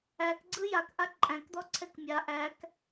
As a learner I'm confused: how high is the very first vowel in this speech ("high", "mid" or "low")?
low